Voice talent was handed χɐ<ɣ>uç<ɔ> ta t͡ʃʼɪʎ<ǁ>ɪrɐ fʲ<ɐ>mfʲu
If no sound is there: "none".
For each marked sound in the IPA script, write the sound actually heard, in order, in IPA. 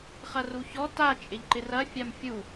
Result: r, ɔ, ǃ, a

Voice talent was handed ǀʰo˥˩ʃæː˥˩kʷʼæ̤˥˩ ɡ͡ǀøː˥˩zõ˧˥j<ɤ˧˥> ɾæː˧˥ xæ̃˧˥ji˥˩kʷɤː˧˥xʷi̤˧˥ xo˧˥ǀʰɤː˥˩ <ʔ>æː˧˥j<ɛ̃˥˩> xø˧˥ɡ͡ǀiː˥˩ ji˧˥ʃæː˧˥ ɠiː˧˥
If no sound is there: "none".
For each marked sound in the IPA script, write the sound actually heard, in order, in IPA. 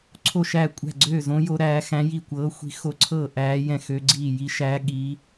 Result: o˧˥, ʔ, ɛ̃˥˩

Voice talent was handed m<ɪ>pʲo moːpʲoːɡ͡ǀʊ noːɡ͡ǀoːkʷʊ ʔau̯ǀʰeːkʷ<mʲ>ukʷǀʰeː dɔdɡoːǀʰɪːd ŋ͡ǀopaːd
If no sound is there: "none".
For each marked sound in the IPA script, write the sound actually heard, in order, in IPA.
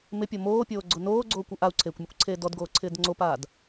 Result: ɪ, mʲ

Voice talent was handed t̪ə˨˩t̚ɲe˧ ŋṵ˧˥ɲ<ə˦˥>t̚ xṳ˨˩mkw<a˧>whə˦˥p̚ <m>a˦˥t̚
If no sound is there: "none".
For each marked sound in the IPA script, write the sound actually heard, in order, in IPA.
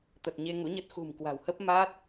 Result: ə˦˥, a̤˨˩, m

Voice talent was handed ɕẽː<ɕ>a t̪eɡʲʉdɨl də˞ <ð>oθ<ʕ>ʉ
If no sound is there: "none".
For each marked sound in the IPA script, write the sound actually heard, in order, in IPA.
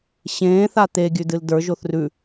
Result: θ, ʒ, r

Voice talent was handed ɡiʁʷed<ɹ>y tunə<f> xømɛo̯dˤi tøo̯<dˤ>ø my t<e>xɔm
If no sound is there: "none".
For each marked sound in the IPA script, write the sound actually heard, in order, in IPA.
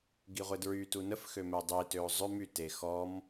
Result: ɹ, f, zˤ, e

